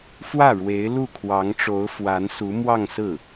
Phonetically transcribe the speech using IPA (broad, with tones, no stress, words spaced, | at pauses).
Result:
fwä˥˩ɻwe˧˥ɪ̯ lu˥˩kʰwɑ˧˥ŋʈ͡ʂo˧˥ʊ̯ fwa˧˥nsu˧˥ mwɑ˥˧ŋsɹ̩˥˩